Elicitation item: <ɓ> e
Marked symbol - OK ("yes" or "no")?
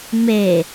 no